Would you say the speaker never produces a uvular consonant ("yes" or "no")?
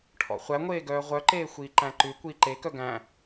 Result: no